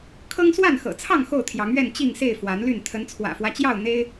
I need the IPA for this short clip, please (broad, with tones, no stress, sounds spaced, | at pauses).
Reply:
kʰ ɤ˦ ŋ s w a˥˨ n x ɤ̰˨˩ t͡sʰ ɑ˥˨ ŋ x o˥˨ ʊ̯ t̪ʰ j ɑ˨˦ ŋ ɥ ɛ˥˨ n t͡ɕ i˥˨ ŋ s e˥˨ ɪ̯ f w a˨˦ n l y˥˨ n t̪ʰ ə˨˦ n t͡sʰ w ä̰˨˩ f w ä˦ t͡ɕ j ɑ˥˨ ʊ̯ n̪ e˦ ɪ̯